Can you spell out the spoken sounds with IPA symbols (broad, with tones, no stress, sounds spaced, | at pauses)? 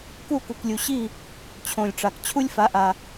k u˥˩ k u˩ k lʲ u˩ ɕ i˥˩ | t͡ɕʰ õ˩ lʲ ʈ͡ʂ a˩ k t͡ɕʰ u˥ lʲ f a˩˥ ʔ a˩